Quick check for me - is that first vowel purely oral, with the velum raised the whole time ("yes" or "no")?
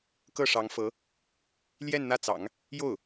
yes